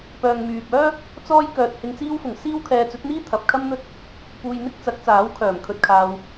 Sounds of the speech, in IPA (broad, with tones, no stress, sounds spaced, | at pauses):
p œː˨ ŋ m yː˨ p̚ œː˥ | t͡s ɔː˥ j k œː˧ t̚ h ɪ˧ ŋ t͡s iː˧ w f ʊ˨˩ ŋ s iː˥ w kʰ ɛː˧ t͡s ɵ˨˥ t̚ n̪ iː˥ t̪ʰ ɐ˨ p̚ kʰ ɐ˥ m n̪ ɵ˥ t̚ | p uː˧ j n̪ ɪ˥ k̚ t͡s ɐ˨˥ k̚ t͡s aː˨˥ w kʰ œː˨˩ m kʰ ɵ˧ t̚ kʰ aː˧ w